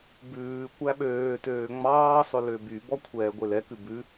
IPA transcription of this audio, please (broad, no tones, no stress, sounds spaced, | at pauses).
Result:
b ʉː kʷ æ ɓ øː t øː ŋ͡m ɑː sˤ ɵ l ø b y b ɔ kʷʰ ɛː ɡʷ e l ɛ k ʉ b ʉ